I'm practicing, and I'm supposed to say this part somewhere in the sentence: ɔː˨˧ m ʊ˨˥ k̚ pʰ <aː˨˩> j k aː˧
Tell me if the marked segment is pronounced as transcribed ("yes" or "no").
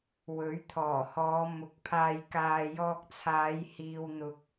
no